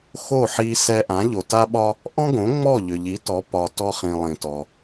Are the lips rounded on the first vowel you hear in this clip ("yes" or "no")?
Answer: yes